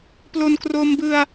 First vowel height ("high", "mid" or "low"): mid